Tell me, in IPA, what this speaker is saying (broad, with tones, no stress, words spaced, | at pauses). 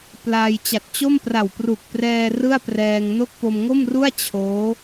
plaː˧j t͡ɕa˨˩t̚t͡ɕo˥˩mpra˨˩w pru˨˩k̚prɛː˧ rɯ˥˩a̯prɛː˧ŋno˥˩k̚ po˧mŋo˥˩mru˥˩a̯ t͡ɕʰoː˦˥